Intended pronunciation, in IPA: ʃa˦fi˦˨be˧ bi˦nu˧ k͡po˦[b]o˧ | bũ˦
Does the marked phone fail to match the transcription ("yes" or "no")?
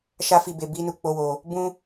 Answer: yes